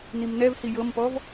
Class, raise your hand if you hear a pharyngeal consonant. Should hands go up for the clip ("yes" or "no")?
no